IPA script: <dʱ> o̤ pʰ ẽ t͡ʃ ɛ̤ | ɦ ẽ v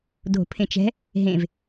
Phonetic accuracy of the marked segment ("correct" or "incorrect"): correct